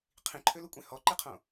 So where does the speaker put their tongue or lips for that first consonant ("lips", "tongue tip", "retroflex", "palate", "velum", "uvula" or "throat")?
uvula